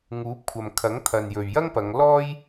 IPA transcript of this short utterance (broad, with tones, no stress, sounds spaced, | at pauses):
ŋ uː˨˥ p̚ kʷʰ ɐ˨ m kʰ ɐ˨˥ ŋ t̪ʰ ɐ˨ n j ɵ˨ ɥ j ɐ˥ ŋ p ɐ˨˧ ŋ l ɔː˥ j